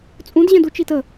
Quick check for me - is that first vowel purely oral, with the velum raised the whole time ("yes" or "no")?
no